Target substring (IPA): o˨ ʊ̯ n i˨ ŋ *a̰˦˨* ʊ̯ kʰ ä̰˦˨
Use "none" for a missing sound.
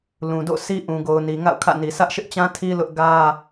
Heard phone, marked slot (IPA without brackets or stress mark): a̰˦˨